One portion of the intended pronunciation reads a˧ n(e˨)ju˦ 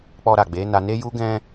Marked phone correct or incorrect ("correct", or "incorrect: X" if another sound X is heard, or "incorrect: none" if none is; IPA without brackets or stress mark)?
incorrect: e˦